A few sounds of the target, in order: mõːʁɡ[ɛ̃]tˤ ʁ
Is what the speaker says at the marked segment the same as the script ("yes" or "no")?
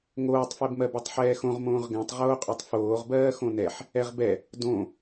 yes